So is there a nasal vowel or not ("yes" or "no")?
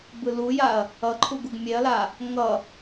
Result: no